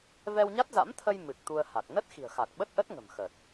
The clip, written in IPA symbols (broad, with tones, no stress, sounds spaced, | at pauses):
v ɛ˧ w ɲ a˦˥ t̚ z a̰˧˥ m t̪ʰ ə˧ j m ɨ˨˩ k̚ t̪ u˧ ə̯ h a˨˩ k̚ n ə˦˥ t̚ x i̤˨˩ ə̯ x a˨˩ k̚ ɓ ə˦˥ t̚ ʔ ə˦˥ t̚ ŋ ə̤˨˩ m x ə˨˩ t̚